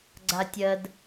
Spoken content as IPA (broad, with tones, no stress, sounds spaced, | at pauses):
ɡ͡ǀ a˨ tʲ ɜ˨ d